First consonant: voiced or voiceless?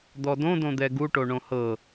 voiced